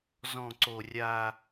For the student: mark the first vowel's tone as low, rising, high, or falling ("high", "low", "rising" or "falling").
low